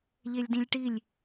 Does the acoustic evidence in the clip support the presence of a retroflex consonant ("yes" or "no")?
yes